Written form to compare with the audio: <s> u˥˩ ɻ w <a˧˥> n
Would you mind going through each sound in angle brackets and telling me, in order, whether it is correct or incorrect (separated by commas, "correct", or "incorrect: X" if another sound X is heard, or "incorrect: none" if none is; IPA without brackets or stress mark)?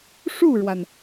incorrect: ʂ, incorrect: a˩